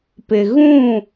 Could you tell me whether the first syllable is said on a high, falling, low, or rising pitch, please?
low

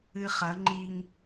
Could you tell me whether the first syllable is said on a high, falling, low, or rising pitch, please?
high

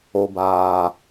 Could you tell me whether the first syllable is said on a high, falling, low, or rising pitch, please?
low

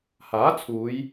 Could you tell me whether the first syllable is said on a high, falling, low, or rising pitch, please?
rising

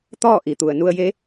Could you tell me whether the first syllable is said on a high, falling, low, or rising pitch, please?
falling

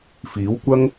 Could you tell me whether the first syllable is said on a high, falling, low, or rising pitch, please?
rising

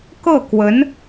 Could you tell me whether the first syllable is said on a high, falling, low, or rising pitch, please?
falling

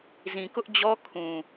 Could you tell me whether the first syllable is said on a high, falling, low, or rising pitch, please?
low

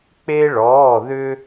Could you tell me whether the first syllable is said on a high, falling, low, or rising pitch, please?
high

